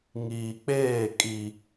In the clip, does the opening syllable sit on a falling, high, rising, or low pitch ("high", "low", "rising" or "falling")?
low